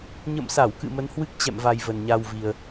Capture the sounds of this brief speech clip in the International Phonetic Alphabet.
ɲə̰˧˨msa˧˩wkɨ̰˧˨ mə˨˦nhwɨ˦˥k̚t͡ɕɛ̰˧˨mva˨˩j və˨˩nɲa˧wvi˨˩ə̯

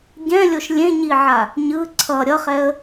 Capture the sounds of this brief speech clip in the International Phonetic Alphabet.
ɟɛ̃lʲoʃ lʲẽɲiʕa | ɲɯ ǀʰʌ ɾʲʌχɛə̯

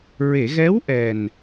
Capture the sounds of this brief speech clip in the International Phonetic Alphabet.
ɹe˨˩˨ɣɛ˧˥wʔɛ˨˩n

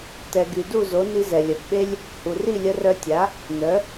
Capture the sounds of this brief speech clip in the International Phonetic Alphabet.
tɛ˩ ɡy˩du˥˩zo˩˥ ni˧zɛ˩lʲœ˩bɓe˥lʲ | hu˩ri˥˩ lʲə˧rœ˧tʲa˩˥ | nœ˩˥

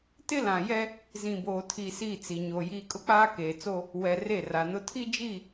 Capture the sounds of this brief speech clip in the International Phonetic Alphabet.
tɪ˦lã˨jɛ˦ | zĩ˨boː˨tʰi˨ si˦˨t͡si˨ɲo˨jiː˦ kʼʊ˦k͡paː˦keː˨t͡so˦ | wɛ˨ re˦˨ra˨nʊ˦ tʰi˦d͡ʒi˦˨

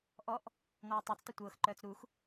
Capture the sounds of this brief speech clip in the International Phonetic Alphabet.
ʔɔʔ | ŋɔːtˤœt͡stˤə tʷɤːxǃœːt͡s ɾux

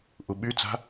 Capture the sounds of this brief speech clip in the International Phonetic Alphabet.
ʔuɓyt͡sa̤

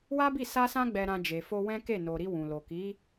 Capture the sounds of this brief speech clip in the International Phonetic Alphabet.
wa˦bi˦˨ sa˧sã˧ɡ͡bɛ˨ɾã˨ d͡ʒe˨fo˧wɛ̃˦ ke˦˨no˨ɾi˧ wũ˨lo˨ki˨˦

